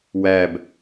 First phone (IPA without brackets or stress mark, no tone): w